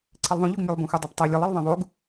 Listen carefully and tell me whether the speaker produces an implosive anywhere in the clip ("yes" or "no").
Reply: no